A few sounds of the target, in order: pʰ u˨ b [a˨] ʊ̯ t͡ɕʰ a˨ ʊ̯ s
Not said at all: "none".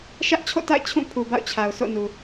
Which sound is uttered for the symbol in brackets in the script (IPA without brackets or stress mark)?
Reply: a̰˦˨